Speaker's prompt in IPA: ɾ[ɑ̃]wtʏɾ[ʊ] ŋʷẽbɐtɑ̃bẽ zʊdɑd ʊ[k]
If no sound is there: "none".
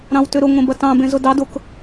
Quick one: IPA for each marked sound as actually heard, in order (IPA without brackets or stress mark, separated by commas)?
ɑ̃, ʊ, k